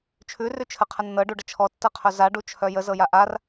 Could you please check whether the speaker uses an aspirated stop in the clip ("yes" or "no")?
yes